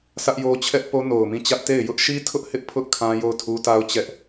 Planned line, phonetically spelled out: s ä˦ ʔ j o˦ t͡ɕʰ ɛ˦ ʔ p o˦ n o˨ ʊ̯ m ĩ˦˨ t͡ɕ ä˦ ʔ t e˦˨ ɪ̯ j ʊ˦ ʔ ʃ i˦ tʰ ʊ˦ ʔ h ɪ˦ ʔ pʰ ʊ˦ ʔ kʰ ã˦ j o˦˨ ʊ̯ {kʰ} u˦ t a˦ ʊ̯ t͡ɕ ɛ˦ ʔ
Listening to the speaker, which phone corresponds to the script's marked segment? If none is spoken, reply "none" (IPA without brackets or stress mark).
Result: tʰ